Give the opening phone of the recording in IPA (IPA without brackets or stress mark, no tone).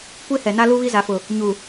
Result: kʷ